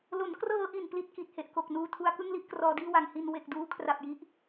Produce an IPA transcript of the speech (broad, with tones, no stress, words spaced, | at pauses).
lo˩˦nkrɤː˧ʔi˨˩n pli˥˩t̚ki˨˩t̚he˨˩ʔko˨˩k̚ nuː˧tʰu˧a̯ kɯ˥˩ŋli˥˩ʔkrɔː˧diː˥˩ wa˨˩ŋ hi˧n we˨˩k̚duː˦˥ kʰra˨˩p̚ji˦˥ʔ